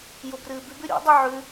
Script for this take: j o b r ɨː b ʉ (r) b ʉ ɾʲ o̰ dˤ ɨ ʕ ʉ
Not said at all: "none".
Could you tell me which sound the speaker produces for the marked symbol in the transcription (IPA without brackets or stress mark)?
none